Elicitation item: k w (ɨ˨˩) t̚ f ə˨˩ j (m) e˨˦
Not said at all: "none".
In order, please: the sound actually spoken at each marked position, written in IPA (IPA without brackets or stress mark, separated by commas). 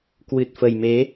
ɨ˨˩, m